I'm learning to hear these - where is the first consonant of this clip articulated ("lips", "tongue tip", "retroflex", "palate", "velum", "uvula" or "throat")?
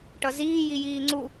retroflex